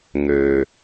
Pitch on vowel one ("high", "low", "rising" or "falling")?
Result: low